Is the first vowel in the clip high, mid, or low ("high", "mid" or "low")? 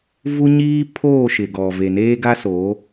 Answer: high